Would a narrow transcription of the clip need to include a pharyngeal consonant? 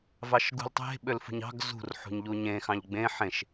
yes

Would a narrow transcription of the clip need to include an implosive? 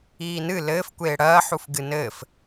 no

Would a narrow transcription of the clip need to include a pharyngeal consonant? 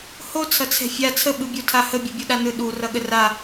no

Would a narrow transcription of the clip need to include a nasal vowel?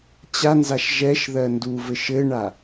no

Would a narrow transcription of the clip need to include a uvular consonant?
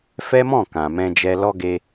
no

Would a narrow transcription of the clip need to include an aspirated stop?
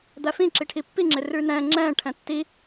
yes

